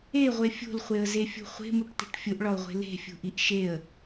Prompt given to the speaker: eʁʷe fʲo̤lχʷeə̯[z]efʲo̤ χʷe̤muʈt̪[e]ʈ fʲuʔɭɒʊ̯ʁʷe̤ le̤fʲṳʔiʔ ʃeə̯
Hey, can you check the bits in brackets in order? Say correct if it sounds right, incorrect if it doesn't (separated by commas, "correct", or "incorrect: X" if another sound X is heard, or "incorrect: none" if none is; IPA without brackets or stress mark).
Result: correct, incorrect: e̤